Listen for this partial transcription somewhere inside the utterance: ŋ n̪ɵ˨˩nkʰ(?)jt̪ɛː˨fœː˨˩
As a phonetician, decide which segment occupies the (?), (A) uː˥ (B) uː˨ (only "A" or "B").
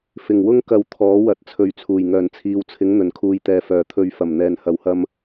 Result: B